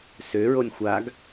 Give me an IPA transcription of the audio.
søɹonʲ xʷaɡ

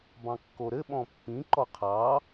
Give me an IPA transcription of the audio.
bɑ̃kːoɾɘ ɓɔ̃pːĩ ǃɔqʰɑ

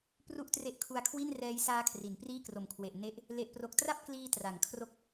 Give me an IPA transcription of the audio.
pru˥˩ʔtre˦˥ʔkʰu˧a̯kʰwi˥˩n rɛː˦˥jsaː˦˥ kʰri˩˦npriː˥˩kro˨˩mkʰwe˨˩ʔ ne˦˥ʔ | le˨˩ʔpro˨˩k̚tra˥˩p̚kliː˧ tra˩˦ŋkʰro˦˥k̚

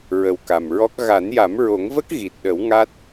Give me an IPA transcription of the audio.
ɹə˨˩wka˨˩mɹɔ˦˥k̚ ɣa˨˩˦nja˨˩˦mɹo˨˩˦ŋvə˦˥k̚ ɣi˨˩t̚ɗə˨˩˦w ŋa˦˥t̚

